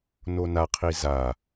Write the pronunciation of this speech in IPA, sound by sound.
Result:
n o n a qʰ i z a

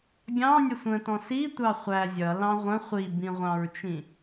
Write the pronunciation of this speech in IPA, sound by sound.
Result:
ɡʲ ɑ̃ nʲ ə sʷ ə̃ t ɔ̃ s i tʷ ɑ χʷ æ zʲ ʌ l ɑ̃ ʁʷ ə̃ χʷ i b ĩ ʁʷ ɑ̃ ɹ t͡ʃ ĩ

